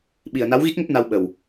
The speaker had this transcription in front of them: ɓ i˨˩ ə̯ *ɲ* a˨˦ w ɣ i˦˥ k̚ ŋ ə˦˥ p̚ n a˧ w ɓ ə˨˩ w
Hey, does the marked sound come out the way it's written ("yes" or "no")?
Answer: no